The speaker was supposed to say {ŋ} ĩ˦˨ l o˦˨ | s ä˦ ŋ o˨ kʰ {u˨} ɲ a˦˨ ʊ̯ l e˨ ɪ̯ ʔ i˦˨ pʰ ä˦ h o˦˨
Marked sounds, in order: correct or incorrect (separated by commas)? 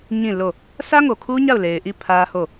incorrect, incorrect